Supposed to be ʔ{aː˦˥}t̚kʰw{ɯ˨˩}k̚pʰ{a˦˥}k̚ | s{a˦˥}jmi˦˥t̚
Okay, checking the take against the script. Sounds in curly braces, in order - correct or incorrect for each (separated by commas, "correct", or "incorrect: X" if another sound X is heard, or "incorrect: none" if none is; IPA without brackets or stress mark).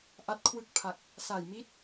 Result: incorrect: a˦˥, incorrect: ɯ˦˥, incorrect: a˨˩, incorrect: a˨˩